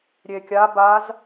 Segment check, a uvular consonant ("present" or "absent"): absent